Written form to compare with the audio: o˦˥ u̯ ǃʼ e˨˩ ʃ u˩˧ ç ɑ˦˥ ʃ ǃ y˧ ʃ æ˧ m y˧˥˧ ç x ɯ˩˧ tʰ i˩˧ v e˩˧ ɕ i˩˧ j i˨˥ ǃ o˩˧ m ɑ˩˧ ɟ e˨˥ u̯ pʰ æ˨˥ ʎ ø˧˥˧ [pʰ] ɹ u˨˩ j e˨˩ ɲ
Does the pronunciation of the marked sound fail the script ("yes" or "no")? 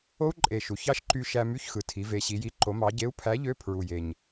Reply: no